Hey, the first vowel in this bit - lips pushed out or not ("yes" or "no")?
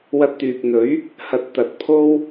no